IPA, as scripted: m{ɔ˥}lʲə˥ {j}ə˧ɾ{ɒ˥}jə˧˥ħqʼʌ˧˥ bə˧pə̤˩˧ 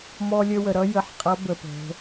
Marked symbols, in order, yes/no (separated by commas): yes, no, no